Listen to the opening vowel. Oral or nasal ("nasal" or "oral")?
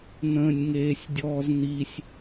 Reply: nasal